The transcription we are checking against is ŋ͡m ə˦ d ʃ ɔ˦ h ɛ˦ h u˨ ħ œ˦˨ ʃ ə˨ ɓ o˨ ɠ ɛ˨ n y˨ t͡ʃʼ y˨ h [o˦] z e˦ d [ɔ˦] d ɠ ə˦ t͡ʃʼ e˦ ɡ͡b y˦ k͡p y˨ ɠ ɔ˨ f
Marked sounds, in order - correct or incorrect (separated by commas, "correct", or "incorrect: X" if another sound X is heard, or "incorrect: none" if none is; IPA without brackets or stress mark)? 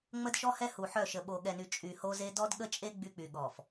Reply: correct, correct